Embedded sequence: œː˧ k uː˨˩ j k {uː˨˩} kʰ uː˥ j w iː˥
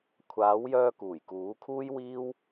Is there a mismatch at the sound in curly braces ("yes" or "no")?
yes